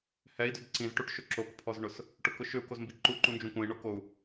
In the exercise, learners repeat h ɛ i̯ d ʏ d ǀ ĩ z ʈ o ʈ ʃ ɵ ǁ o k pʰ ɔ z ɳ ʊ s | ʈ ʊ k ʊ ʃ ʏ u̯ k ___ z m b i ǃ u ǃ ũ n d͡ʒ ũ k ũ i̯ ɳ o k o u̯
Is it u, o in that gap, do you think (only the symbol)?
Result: o